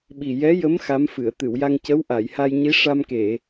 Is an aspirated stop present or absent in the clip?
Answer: absent